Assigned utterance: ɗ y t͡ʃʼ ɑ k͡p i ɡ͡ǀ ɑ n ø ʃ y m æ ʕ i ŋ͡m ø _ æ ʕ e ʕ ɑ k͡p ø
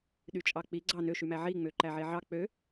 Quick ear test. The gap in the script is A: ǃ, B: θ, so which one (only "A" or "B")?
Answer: A